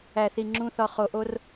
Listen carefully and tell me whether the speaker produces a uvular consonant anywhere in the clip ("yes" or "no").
yes